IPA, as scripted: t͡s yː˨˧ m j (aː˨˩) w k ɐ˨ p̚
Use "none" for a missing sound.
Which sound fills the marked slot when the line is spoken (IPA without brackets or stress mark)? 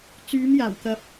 aː˨˩